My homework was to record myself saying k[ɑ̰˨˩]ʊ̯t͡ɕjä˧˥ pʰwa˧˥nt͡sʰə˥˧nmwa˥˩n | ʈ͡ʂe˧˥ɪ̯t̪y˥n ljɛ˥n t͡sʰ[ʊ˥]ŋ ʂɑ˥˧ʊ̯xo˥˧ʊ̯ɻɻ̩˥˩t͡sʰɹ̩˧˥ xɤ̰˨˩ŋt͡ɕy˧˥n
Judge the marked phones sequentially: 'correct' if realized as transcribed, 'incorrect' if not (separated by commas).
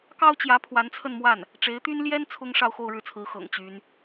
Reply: incorrect, correct